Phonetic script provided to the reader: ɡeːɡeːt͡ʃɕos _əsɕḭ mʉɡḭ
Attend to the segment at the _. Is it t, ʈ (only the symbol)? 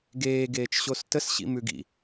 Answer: t